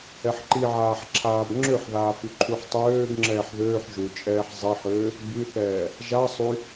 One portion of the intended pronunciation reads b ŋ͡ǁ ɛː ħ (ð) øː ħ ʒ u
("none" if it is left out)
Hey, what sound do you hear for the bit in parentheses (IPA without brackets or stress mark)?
ð